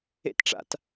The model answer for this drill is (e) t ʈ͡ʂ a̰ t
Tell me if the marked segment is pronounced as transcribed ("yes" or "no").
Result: no